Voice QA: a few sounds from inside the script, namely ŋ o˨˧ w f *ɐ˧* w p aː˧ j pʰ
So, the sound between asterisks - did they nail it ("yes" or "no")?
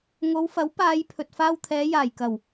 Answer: no